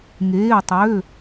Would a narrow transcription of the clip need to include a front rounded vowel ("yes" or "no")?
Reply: yes